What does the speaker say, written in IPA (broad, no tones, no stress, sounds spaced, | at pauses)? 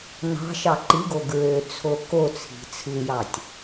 n ɑ̤ ʃ ɑ ǃ i ɡ o ɡ ɹ ø t͡sʰ o k o t͡sʰ i̤ t͡sʰ ɯ j ɑ tʲ